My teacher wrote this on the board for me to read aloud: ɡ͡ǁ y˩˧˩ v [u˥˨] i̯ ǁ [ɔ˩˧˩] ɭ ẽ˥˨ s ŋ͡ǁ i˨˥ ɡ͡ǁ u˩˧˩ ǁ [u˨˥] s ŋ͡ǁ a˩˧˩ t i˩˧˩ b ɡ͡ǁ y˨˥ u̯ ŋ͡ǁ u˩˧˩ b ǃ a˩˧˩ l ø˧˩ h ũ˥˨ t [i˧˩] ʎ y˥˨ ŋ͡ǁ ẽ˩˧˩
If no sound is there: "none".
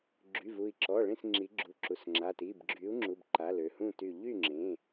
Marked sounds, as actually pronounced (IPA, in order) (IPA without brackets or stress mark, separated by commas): u˧˩, ɔ˩˧˩, u˩˧˩, y˧˩